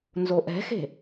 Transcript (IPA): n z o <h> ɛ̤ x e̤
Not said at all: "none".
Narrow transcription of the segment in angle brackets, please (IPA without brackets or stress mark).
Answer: ʔ